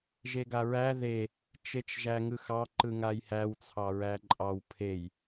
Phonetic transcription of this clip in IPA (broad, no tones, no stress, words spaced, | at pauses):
ʒeɡaɹæ ðe | t͡ʃet͡ʃʒæŋɯxɑ ǃɯŋajhæw t͡sʰɑɹæǃʼɑw pʰej